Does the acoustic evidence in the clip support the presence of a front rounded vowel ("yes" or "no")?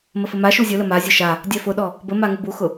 no